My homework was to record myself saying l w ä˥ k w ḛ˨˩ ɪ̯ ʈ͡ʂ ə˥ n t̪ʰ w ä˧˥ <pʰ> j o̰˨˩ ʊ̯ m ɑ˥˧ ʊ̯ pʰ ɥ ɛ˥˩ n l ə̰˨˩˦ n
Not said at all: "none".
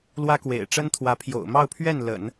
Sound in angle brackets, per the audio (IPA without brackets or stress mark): pʰ